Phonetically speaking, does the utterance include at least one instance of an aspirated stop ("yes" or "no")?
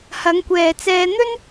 no